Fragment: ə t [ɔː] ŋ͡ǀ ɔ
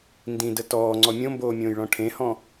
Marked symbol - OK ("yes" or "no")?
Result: yes